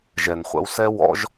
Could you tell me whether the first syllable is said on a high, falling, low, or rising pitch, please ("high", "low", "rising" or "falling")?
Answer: low